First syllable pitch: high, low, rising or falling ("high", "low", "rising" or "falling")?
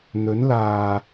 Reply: rising